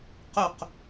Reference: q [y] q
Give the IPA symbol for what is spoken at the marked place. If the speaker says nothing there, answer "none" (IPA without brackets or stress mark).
y